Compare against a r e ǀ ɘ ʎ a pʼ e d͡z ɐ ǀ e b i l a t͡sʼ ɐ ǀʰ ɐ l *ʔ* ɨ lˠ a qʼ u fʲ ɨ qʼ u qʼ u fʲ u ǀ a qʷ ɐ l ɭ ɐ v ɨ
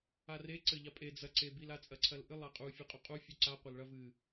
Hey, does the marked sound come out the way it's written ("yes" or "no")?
yes